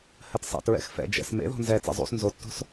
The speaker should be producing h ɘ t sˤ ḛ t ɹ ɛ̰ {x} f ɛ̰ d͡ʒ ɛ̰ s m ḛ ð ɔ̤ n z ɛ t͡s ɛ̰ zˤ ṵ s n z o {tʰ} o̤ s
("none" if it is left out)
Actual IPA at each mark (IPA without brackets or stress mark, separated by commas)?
x, tː